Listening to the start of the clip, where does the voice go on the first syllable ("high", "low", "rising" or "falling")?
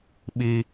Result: high